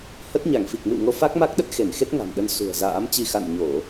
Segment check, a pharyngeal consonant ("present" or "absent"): absent